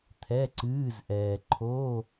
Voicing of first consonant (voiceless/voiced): voiceless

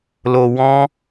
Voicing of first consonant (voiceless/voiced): voiced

